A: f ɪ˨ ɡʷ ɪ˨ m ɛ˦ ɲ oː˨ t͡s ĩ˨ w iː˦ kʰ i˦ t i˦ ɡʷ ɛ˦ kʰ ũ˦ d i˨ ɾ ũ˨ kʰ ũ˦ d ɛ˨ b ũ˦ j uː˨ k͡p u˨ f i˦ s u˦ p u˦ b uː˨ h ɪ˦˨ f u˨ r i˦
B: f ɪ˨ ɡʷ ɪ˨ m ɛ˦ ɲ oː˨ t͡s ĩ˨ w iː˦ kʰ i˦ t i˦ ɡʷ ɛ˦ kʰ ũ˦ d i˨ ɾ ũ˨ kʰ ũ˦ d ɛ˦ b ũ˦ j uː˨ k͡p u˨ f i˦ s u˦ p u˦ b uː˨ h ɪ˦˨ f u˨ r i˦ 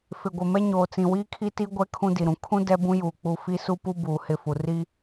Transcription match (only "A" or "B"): B